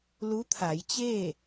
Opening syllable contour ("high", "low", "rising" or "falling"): rising